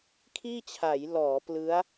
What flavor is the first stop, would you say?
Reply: aspirated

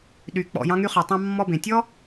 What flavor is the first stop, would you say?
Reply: implosive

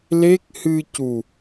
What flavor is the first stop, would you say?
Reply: plain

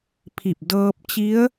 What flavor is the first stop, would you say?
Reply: aspirated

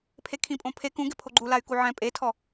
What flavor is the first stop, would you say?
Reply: aspirated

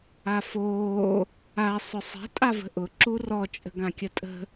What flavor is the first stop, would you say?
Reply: ejective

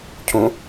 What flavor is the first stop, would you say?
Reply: aspirated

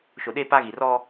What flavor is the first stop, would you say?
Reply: implosive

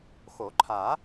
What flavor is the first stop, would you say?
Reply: click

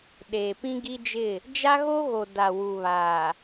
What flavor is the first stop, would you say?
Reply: implosive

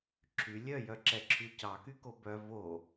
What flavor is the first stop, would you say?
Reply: click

